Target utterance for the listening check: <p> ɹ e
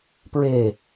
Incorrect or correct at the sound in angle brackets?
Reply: correct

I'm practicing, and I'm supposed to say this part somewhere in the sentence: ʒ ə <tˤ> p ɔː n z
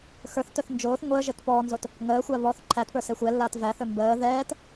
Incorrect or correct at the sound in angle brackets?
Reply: incorrect: t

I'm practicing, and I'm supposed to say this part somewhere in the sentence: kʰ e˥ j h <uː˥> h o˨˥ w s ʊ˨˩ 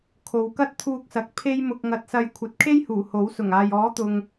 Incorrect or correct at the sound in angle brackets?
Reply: incorrect: uː˨˩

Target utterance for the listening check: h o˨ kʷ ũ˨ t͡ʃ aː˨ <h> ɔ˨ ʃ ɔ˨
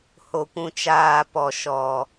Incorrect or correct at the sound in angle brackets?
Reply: incorrect: p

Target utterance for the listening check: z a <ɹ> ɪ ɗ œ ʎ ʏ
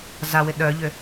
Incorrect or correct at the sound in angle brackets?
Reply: incorrect: w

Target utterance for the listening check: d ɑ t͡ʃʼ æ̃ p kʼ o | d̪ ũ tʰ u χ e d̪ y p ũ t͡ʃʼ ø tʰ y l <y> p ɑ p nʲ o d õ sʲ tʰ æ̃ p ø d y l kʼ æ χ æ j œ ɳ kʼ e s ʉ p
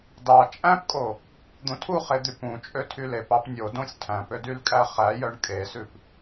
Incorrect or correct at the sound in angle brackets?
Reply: incorrect: e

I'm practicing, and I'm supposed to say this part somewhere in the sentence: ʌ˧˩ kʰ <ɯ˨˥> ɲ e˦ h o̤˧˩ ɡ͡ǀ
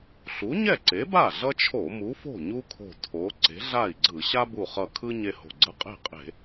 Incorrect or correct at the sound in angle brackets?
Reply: incorrect: ɯ˦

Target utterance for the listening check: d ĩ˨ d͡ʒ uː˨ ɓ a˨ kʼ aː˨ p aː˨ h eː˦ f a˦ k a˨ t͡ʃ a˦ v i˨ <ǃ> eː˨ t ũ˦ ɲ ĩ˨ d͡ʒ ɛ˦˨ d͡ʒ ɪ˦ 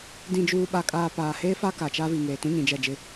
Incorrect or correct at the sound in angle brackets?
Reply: incorrect: ŋ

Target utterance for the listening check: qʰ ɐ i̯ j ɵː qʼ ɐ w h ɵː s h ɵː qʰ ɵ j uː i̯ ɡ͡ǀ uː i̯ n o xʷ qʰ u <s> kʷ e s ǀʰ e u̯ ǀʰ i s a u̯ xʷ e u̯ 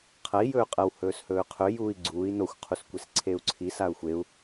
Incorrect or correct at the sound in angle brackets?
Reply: correct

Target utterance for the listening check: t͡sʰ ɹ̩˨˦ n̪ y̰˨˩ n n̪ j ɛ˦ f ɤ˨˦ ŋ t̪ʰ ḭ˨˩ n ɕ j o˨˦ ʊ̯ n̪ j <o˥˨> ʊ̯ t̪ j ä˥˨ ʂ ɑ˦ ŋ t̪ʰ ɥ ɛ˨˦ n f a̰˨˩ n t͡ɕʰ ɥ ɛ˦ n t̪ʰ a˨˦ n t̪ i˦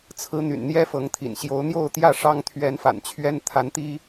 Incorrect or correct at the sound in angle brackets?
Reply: correct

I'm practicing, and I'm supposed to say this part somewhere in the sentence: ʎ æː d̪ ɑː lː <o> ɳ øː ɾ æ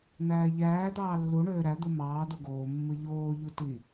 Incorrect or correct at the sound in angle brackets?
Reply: incorrect: u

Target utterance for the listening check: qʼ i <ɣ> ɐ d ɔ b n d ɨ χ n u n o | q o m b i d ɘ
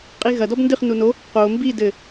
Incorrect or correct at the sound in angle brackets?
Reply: correct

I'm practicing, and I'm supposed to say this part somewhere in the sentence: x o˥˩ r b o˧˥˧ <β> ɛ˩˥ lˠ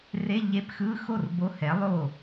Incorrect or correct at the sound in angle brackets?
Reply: incorrect: h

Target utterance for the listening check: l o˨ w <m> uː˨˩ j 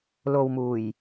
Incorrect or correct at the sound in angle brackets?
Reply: correct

